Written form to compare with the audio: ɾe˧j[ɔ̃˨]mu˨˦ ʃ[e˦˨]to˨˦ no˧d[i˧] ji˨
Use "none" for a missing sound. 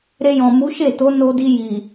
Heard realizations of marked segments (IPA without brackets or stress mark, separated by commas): ɔ̃˨, e˦˨, i˧